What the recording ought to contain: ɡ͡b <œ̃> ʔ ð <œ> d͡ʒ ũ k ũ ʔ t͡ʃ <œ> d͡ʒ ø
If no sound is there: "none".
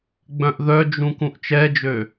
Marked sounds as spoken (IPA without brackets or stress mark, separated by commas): œ̃, œ, ɛ